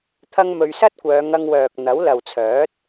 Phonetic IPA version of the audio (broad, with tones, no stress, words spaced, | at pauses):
t̪ʰɐ˥ŋmɵ˧ɥ sɐ˥t̚kʷœː˨˧ŋɐ˧ŋ wœː˨k̚ n̪ɐ˨˥wlɐ˨wt͡sʰœː˨˥t̚